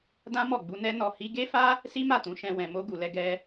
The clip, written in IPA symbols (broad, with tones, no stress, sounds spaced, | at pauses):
d ã˦ m ɔ˦˨ ɡ͡b u˧ n ɛ˦ n ɔ˧ h i˧ ɡ e˦ f a˦ | s i˦ m a˦˨ t ũ˨˦ ʃ ɛ̃˧ w ɛ̃˨ m o˧ ɡ u˨ l ɛ˧ ɡ ɛ˧